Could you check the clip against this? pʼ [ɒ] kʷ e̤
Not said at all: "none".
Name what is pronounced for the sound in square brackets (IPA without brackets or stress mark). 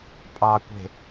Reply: ɑ